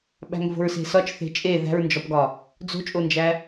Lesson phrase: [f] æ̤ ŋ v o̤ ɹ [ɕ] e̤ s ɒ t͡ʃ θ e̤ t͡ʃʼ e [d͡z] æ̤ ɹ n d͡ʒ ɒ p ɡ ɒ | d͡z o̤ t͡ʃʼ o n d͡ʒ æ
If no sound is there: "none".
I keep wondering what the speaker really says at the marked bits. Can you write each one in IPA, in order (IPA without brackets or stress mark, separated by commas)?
ɓ, s, ð